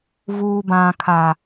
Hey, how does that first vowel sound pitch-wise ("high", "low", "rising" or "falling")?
low